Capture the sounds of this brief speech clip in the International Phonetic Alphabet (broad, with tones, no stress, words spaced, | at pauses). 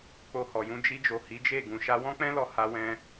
k͡po˧hɔ˨jũ˧ d͡ʒi˧d͡ʒo˨ hi˨˦d͡ʒe˦˨ ɡũ˨ ʃa˧wɔ̃˦k͡pɛ̃˦lɔ˧ ha˧wɛ̃˧